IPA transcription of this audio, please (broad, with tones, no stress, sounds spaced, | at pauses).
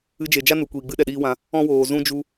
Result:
ɨ˧ d͡ʒ e˨ d͡ʒ a˦ n u˨ kʷ iː˨ ɡ͡b ɨ˦ ɗ ɛ˨ ɗ iː˦ w ã˧ | ɔ̃˦ w oː˨ z ũ˦ d͡ʒ u˧